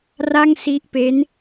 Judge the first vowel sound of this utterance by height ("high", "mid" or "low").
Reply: low